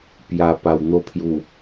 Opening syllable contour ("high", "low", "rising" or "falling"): low